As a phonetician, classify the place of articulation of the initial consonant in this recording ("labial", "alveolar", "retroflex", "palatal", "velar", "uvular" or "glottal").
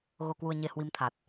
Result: velar